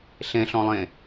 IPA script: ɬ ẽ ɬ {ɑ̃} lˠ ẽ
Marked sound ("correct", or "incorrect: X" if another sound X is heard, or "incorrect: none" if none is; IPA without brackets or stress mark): incorrect: ɔ̃